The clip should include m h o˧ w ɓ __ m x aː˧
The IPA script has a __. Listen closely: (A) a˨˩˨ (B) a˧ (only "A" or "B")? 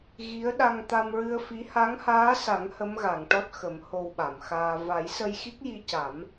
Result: A